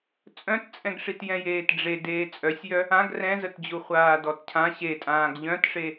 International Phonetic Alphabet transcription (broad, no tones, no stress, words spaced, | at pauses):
t͡sʼœ̃tt͡sʼɛ̃ɡʂitjɛ̃ jeːtɖ͡ʐe deːt͡sʼœsʲjœ | ãɡ rɛ̃zətd͡ʑu χʷaːdɔtcʰã ɕetʼãːɡ ʎœ̃tʂe